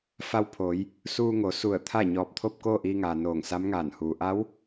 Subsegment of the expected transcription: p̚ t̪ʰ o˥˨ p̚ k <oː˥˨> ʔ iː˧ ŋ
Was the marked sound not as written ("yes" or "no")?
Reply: no